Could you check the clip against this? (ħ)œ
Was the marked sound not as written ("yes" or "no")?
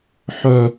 no